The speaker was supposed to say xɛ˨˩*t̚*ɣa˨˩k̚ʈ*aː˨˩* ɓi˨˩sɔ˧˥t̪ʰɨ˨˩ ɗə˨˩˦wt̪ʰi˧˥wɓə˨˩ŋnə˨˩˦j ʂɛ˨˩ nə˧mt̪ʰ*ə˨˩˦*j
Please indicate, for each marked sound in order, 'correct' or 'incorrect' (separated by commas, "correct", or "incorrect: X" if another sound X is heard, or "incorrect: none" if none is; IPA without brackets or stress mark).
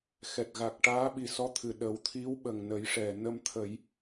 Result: correct, incorrect: aː˧˥, correct